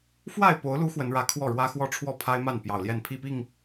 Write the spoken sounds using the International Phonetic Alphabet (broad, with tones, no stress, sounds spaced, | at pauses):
f w a˥˨ ɪ̯ p o˨˦ ʊ̯ l u˨˦ x w ə˨˦ n ɻ ä˨˦ kʰ w ɔ˥˨ ɻ w ä˦ x w ɔ˦ ʈ͡ʂʰ w ɔ˥˨ pʰ a˦ ɪ̯ m a˥˨ n p j ɑ˨˩ ʊ̯ l j ɛ˥˨ n pʰ i˥˨ p i˥˨ ŋ